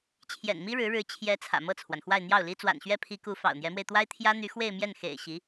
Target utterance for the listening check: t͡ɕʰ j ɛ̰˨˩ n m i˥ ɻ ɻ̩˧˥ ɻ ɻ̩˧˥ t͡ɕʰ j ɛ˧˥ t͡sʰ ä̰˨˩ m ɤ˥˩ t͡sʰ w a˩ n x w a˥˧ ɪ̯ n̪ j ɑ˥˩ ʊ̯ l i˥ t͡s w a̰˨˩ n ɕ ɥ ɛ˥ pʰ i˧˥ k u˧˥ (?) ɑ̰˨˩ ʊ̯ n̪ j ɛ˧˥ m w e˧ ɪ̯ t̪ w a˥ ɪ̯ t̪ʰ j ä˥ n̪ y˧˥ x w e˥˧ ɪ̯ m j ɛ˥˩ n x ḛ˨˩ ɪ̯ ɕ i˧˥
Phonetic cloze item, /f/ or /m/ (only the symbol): f